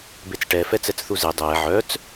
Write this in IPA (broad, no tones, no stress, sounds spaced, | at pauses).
b e t͡s ʈ ɛ f ɛ t͡s ɛ t͡s θ u z e dˤ ɛː ʕ œ t͡s